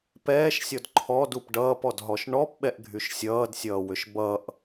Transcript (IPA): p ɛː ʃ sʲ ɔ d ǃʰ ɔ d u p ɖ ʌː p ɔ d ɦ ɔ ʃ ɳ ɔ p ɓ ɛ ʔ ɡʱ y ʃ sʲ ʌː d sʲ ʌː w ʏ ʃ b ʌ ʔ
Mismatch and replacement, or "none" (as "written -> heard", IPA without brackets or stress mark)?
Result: none